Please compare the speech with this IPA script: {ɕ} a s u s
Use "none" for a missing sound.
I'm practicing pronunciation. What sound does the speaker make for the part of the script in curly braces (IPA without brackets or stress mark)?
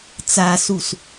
t͡s